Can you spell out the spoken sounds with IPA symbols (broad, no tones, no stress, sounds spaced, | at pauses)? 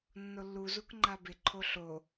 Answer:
nː o lː u z u k ŋ͡ǃ a b ɪ ǃʰ o ɬ o